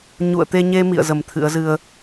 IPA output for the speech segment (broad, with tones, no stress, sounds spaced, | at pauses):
ɲ ṵ˧˨ ə̯ t̪ e˧ ɲ e˧ m ḭ˧˨ ə̯ z ə˨˩ m t̪ʰ ɨ̰˧˥ ə̯ z ɨ˧ ə̯